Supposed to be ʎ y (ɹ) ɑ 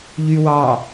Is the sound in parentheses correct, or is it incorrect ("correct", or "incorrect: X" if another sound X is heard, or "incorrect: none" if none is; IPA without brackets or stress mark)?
incorrect: w